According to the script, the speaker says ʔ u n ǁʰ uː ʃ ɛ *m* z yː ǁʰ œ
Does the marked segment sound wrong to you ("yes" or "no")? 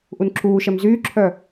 no